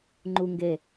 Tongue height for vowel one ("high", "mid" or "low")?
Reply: high